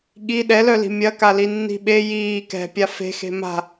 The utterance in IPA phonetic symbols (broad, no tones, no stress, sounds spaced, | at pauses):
ɠ i ɗ ɛ l œ l i̤ mʲ ɐ k a l i nː i̤ ɓ e j iː k ɛ̤ pʲ a f e̤ x e̤ m a̤